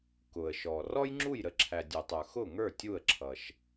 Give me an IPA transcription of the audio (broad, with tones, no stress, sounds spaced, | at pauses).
k ʊ˩ ə̯ ʃ ɔ˩ r ɔ˥ j ŋ͡ǁ u˥˩ j ɾ ə˧ ǁʰ æ˩ dʲ u˩ tˤ ə˞˩ x ʊ˥˩ ŋ ə˞˥˩ tʲ u˥˩ ə̯ ǁʰ ʌ˩ ʃ